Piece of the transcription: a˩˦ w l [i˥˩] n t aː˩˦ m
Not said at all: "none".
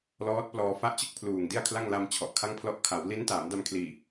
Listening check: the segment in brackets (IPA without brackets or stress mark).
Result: i˦˥